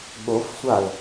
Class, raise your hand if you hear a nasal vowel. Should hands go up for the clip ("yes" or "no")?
no